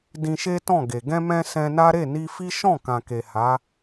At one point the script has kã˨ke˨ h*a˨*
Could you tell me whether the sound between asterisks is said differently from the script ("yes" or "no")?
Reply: yes